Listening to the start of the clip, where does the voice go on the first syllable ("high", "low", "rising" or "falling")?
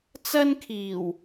high